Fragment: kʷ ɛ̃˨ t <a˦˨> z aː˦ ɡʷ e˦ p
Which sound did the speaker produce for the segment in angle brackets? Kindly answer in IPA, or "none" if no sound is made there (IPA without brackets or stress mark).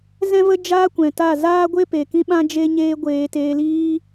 a˦˨